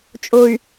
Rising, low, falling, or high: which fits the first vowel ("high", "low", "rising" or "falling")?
low